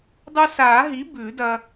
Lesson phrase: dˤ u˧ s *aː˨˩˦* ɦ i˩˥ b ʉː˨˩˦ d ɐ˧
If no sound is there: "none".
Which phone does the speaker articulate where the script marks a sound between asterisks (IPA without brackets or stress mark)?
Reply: aː˨˩˦